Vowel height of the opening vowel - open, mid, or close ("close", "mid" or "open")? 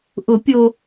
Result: close